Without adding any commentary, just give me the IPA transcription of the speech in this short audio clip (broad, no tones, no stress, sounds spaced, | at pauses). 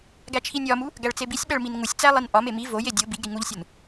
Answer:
ɡ æ t͡ʃʰ i nʲ ɒ m u | ɡ æ ɭ t͡s e b i sʲ ɓ æ ɭ m i n ŋ u sʲ t͡s æ lˠ i n ʔ ɒ m e m i v o j e dʲ o b i ɡ ɾ i ŋ u ʎ sʲ u n